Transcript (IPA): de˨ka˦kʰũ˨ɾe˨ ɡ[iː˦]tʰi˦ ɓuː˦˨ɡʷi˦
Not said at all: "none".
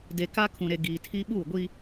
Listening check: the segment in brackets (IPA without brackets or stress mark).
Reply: iː˨